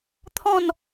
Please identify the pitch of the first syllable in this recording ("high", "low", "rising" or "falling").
falling